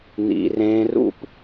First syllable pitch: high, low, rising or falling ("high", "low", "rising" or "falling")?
low